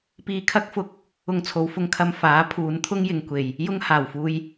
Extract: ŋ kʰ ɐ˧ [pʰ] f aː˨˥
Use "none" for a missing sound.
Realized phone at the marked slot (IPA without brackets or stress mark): m